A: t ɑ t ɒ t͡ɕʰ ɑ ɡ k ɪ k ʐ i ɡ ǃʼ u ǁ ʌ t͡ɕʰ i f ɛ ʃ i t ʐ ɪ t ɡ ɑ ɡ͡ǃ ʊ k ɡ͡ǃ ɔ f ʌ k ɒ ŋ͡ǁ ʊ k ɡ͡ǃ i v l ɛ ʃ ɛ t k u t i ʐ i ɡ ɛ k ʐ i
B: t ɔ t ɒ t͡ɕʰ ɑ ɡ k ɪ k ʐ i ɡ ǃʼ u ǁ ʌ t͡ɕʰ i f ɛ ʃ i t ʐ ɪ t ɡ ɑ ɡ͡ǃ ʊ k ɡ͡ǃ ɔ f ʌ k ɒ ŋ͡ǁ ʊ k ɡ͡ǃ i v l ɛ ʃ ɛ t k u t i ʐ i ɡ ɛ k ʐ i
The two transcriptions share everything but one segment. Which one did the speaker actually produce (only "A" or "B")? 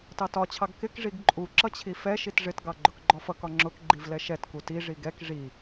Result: A